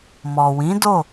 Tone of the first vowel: low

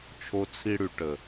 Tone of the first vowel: high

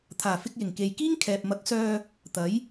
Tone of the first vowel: low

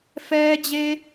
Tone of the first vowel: high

